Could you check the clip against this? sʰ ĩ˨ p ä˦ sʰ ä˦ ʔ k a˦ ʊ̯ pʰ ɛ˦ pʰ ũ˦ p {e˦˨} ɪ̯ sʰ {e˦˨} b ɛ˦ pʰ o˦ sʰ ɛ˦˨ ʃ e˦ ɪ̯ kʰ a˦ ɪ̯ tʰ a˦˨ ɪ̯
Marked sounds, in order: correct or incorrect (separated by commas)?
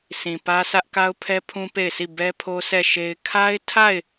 correct, incorrect